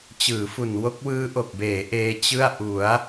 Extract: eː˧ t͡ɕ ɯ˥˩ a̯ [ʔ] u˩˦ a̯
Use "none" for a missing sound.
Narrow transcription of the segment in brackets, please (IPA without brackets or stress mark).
ʔ